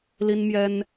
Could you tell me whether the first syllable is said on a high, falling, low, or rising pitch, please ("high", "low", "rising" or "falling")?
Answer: high